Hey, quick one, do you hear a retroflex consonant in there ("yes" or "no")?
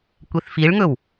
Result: yes